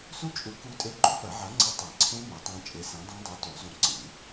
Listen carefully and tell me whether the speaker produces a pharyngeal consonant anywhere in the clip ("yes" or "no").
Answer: yes